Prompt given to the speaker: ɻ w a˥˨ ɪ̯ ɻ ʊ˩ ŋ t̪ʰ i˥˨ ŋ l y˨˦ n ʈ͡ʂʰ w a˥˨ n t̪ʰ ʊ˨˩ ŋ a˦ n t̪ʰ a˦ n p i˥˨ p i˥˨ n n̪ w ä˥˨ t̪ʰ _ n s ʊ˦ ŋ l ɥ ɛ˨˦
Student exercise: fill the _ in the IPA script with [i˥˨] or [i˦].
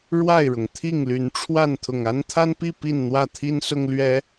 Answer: i˦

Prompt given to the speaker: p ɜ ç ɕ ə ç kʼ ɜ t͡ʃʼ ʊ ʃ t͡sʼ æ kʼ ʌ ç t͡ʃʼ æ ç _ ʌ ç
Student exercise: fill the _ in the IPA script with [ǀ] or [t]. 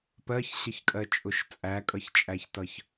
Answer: t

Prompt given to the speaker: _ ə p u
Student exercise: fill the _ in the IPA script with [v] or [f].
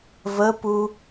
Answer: v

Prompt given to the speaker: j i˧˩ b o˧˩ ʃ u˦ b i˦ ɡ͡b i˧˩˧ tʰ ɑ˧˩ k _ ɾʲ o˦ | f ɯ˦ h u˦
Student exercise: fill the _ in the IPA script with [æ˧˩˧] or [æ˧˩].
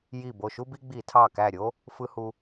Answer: æ˧˩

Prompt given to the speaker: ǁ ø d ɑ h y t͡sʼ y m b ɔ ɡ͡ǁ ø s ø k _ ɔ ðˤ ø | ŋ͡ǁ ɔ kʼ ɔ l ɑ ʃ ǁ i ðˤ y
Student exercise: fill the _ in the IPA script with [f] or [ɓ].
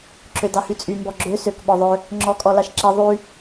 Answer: ɓ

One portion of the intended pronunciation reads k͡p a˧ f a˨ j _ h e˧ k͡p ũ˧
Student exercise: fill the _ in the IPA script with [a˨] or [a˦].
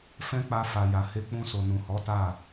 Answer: a˨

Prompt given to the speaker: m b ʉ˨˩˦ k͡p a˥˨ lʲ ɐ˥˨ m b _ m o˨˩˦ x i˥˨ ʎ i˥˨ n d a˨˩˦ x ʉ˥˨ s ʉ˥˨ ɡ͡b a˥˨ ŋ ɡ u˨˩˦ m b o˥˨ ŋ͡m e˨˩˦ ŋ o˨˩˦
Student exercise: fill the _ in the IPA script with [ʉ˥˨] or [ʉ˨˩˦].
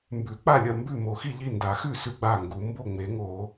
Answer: ʉ˥˨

